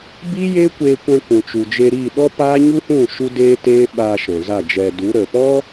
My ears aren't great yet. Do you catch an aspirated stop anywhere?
no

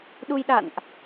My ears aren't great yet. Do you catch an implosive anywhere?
yes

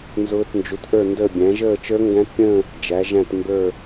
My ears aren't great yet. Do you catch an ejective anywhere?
no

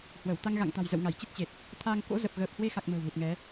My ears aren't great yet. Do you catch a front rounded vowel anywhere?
no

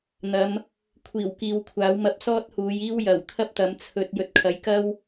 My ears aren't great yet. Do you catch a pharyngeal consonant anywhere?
no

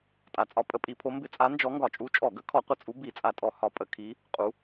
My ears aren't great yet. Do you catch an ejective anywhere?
yes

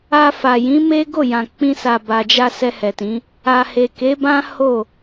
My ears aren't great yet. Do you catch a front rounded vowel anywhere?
no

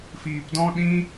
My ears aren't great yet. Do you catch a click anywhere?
no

